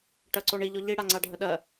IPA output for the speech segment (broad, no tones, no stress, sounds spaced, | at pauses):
ʈ ɜ ǀ o ɳ i ʎ ɔ ʎ i ɽ a ŋ͡ǀ a ɖʱ ə ɗ ɜ